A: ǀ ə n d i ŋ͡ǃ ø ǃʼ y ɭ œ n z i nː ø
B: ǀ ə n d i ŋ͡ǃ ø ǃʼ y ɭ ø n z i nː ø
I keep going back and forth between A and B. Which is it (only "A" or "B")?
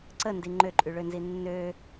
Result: B